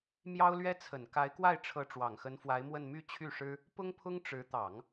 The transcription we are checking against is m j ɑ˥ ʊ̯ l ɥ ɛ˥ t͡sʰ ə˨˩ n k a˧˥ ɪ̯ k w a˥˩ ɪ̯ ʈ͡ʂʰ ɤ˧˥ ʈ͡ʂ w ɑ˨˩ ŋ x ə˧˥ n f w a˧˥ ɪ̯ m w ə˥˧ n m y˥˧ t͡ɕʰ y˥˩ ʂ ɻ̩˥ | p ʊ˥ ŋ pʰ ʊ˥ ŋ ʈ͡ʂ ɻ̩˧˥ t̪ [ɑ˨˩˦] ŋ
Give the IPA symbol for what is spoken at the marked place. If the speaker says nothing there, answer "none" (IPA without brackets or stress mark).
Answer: ɑ˨˩˦